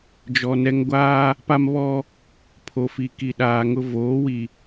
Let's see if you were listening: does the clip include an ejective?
no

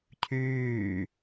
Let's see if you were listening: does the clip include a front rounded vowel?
yes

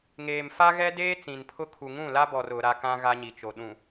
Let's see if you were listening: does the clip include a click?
no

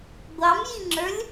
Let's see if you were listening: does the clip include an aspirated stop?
no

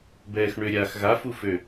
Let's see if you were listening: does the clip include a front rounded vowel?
yes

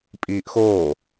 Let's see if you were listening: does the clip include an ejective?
yes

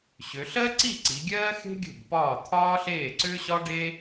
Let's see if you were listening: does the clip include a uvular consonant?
no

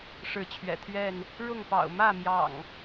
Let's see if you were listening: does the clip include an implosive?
no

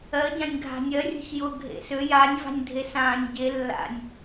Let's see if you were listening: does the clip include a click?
no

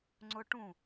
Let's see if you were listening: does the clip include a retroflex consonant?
yes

